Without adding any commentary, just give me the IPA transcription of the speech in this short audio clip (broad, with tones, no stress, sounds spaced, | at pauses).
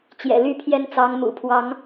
t͡ɕ j ɛ̰˨˩ l y˥˨ pʰ j ɛ˦ n t͡s ɑ˨˦ ŋ m ṵ˨˩ pʰ w ɑ˨˦ ŋ